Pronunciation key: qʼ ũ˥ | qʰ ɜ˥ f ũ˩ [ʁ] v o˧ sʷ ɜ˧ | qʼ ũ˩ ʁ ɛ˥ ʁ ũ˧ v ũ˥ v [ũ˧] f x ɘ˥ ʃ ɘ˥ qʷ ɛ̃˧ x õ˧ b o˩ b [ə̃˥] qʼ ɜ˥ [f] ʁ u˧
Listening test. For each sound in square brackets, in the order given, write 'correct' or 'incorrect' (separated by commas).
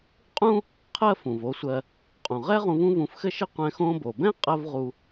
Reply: incorrect, correct, incorrect, incorrect